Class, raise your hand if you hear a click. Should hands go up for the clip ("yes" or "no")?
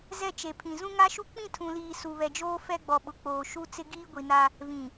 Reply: no